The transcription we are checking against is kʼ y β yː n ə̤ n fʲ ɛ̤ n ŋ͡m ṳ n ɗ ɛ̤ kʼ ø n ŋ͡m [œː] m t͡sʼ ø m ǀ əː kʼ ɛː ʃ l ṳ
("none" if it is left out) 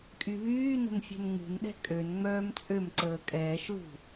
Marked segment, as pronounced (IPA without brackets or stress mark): œː